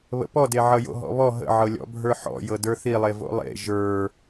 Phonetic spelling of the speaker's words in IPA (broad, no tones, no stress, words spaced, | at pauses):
βə̰pɔde ʕʌjo̰ɦɔ̰βɔ ɦə̰ʕɤlʲɔ̰ bʱə˞ħɔ̰ jɤdə˞θilˠe vo̰lˠḛ ʒə˞